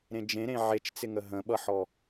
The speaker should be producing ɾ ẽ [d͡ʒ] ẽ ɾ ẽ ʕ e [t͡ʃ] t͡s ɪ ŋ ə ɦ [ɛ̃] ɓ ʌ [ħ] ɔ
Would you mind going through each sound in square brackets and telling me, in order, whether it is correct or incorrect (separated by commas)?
correct, correct, incorrect, correct